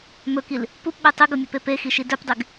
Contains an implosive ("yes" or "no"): yes